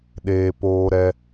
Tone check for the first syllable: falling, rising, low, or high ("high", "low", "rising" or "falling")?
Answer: low